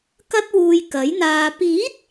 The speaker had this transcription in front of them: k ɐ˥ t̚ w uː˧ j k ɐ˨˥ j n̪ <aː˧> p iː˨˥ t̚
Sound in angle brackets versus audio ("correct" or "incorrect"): correct